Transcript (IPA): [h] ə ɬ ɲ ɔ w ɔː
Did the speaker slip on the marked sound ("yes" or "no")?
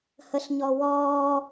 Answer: no